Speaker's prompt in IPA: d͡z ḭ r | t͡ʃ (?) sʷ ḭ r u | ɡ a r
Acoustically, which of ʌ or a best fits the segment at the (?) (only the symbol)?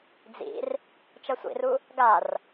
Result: ʌ